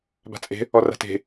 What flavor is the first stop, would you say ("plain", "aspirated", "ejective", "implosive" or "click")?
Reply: plain